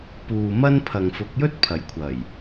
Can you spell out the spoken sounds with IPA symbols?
puː˨mɐ˥npʰɐ˨ŋfʊ˨˥k̚ jɵ˥t̚pʰɐ˨˩jkʷʰɐ˨˩j

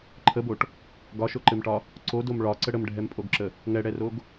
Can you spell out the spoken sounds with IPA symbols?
ǃʰəboʈ | ɡɒʃoǃɘmʈɒ | ǀodom ɭɒǀə ɽəmɖʱɛmpʼoɡǁə | ŋɛɽɛroɡ

